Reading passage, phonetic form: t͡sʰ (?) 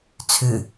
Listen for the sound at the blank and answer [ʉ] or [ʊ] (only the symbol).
ʉ